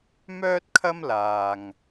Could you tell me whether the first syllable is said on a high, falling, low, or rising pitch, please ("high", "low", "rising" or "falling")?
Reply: high